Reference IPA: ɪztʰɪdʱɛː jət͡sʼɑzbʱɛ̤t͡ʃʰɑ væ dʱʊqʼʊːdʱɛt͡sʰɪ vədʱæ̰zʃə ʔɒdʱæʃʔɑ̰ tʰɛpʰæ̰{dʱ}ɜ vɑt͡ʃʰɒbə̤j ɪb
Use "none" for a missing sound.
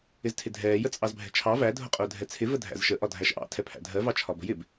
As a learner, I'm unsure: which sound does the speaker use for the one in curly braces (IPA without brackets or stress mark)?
dʱ